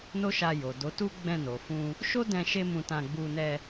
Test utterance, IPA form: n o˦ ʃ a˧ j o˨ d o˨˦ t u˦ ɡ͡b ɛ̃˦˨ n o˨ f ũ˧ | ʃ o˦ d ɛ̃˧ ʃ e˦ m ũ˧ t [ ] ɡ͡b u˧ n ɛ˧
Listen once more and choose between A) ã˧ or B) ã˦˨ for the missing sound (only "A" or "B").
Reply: A